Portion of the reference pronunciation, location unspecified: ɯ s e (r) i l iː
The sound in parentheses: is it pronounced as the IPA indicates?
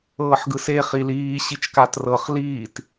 no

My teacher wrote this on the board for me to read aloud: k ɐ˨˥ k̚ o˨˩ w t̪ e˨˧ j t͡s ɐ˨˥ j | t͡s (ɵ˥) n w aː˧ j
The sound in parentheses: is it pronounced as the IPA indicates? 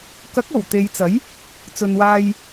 no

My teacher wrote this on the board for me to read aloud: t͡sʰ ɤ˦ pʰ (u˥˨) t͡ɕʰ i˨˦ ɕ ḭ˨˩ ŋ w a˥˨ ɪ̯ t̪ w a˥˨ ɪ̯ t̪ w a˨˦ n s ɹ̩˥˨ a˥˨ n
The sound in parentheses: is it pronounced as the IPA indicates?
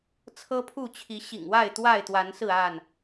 yes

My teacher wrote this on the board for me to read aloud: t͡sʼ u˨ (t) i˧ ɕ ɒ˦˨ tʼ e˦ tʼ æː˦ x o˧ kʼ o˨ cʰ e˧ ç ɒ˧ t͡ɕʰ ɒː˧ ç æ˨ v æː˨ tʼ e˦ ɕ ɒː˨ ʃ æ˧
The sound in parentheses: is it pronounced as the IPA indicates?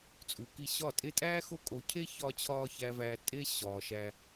no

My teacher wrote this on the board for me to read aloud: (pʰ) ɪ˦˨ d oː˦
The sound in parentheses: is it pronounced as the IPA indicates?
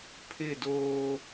yes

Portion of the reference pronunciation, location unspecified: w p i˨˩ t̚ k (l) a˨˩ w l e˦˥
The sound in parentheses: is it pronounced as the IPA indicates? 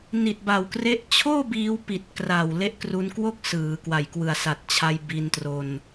no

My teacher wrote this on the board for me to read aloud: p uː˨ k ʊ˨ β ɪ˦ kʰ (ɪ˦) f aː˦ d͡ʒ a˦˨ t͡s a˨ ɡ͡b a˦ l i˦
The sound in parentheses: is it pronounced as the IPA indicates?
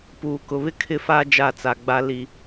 no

